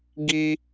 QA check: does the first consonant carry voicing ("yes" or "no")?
yes